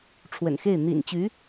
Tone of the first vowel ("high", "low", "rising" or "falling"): low